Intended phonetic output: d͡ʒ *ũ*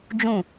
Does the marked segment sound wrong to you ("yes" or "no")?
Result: no